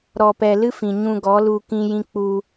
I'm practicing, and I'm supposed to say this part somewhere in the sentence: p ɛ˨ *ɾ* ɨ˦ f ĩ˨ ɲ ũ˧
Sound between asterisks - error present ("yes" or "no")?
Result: yes